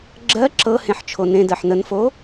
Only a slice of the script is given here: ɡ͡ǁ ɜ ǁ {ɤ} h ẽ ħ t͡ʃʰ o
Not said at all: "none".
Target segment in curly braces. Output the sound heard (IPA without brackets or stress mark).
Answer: ɤ